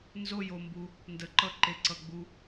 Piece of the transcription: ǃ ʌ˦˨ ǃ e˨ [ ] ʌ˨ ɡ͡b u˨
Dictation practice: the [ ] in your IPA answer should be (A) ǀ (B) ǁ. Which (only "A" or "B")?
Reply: A